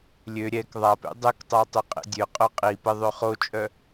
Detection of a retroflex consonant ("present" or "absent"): absent